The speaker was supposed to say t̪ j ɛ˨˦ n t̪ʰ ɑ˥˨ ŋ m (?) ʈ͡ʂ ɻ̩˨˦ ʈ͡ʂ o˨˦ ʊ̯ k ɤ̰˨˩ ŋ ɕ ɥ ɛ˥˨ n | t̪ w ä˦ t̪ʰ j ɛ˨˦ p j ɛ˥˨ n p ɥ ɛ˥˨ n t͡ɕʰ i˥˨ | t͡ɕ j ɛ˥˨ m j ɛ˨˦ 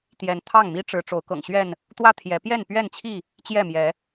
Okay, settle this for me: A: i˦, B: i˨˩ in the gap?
A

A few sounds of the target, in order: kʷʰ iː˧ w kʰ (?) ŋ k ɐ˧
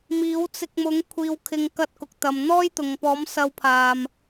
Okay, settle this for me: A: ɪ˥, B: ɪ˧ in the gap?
B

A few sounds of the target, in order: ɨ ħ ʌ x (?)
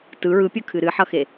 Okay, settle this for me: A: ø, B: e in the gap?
B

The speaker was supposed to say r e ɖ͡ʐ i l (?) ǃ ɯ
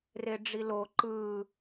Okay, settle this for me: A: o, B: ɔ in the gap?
A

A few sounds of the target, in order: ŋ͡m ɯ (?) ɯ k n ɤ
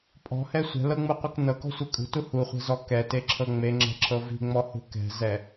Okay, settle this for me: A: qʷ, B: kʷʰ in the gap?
A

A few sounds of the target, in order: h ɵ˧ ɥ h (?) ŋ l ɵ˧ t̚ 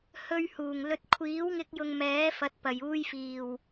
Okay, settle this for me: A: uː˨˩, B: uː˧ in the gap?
A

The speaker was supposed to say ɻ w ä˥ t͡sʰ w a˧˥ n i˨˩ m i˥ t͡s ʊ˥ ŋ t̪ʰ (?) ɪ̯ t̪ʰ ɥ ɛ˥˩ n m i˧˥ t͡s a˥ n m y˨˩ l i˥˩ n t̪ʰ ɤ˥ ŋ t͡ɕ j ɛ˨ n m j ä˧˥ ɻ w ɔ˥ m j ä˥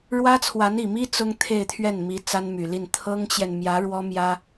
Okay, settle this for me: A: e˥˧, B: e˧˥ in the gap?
A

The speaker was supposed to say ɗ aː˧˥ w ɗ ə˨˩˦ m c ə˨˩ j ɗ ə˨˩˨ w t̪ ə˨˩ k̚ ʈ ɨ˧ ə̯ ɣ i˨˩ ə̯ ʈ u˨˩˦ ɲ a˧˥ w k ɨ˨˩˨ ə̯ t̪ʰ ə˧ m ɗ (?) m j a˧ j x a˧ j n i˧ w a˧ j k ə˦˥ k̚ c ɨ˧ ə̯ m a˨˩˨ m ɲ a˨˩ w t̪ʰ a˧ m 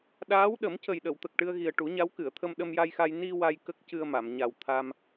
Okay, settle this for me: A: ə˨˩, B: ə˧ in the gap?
B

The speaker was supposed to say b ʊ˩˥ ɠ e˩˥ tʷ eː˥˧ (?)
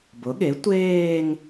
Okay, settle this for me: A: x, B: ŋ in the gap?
B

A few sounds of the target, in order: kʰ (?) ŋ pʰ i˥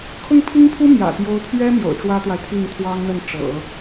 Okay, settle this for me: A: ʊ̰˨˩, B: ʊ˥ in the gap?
B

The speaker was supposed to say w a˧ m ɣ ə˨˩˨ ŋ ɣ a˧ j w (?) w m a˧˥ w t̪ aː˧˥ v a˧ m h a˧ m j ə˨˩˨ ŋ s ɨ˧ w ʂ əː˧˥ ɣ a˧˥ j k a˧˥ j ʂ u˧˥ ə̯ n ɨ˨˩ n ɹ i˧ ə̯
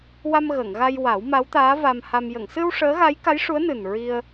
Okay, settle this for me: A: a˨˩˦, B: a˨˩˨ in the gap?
A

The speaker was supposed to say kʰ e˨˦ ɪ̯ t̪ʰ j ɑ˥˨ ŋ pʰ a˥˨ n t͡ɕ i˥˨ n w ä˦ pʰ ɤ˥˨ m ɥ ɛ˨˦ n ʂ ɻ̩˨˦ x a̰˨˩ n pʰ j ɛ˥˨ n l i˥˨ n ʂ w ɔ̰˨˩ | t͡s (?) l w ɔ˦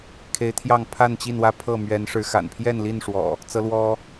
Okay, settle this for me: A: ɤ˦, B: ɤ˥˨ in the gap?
A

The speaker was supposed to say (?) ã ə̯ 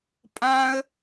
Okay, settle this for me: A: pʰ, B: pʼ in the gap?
B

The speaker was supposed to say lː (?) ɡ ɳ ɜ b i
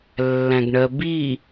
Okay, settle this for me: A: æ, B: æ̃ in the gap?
B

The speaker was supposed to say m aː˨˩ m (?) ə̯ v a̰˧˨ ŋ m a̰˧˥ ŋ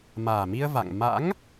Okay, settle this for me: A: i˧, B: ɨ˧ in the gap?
A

